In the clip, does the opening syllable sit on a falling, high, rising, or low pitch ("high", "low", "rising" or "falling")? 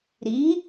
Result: rising